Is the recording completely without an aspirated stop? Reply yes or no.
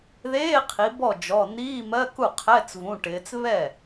no